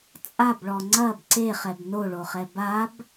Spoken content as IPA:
t͡sʼabɭɔ ŋ͡ǀɐb ǀeχɛb noɭoχɛ bab

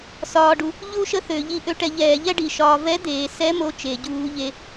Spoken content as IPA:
sɒː˧ɖu˧ | ʎu˥ʃə˥θø˧˩˧ ʎi˧˥ʔø˧˥ʈɛ˧ ʎɛː˧˩˧ʎɛ˥ɖi˨˩ʃɒː˧ vɛ˧˥d̪eː˨˩sɛ˧˥ mo˥t͡ʃe˧˩˧ɟuː˧˥ʎe˧˥

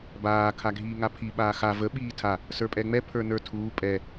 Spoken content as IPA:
baː kʰaɡʱiːŋapʰi ɓaːxa və ɓiːtʰa | sə˞pʼɛŋ͡mɛ pʰə˞nə˞tʰuː pʼɛ

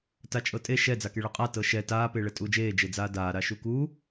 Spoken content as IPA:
tat͡ʃʼɤtʼe ʃɛ d͡zakeɭɤqʼa tɤʃɛ taː peːɭɛtʼuːd͡ʒeː d͡ʒed͡zaːdaː ɾaʃuku

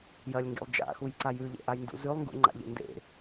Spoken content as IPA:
jɐlʲŋɡḛlˠ d͡ʒa̰xujǀaj ʉʎḛʔajndṵ zʉlˠŋɡṵŋ͡ǃa̰ʎḛ ndḛ

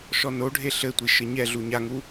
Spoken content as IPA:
ʃɔnoɖʱe ɬɘtʷi ʃɘɲɛɮu ɲaŋu

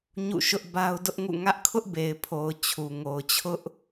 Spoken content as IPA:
ɲṵ˦˨ʃʊ˦ʔ ba˦ʊ̯dʊ˦ʔŋṵ˦˨ ŋä˦ʔkʰʊ˦ʔbe˨ɪ̯pʰo˨ʊ̯ t͡ɕʰu˨ŋo˨ʊ̯t͡ɕʰʊ˦ʔ

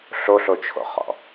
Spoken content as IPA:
ɬoɬot͡ʃʰo̰χɔ̰

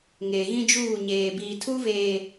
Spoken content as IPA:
ŋeː˨ɣĩ˦d͡ʒuː˦˨ ɲeː˨biː˨tʰu˦veː˨

